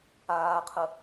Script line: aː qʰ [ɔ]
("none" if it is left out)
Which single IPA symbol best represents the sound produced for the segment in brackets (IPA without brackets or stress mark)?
ə